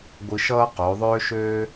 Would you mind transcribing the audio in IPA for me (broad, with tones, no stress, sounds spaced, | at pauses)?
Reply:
ɡʷ ɯ˧ ʃ ʌː˥ q o˩˧ ðˤ øː˥ ʃ øː˥